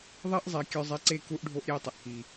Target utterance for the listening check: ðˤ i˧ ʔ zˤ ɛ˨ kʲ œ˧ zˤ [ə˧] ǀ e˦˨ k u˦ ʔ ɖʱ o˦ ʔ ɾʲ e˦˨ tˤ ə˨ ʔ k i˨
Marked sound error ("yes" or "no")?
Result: yes